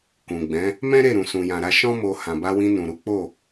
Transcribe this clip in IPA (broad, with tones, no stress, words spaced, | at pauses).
kũ˨ ɡ͡bɛ̃˨˦ | mɛ̃˦ɾe˦˨ ɾũ˨sũ˨jã˨ ɾa˧ʃɔ̃˦ mo˧ hã˨ba˧wĩ˧ nũ˨ɾu˨˦ k͡po˦˨